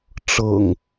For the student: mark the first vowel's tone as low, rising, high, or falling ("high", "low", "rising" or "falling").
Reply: low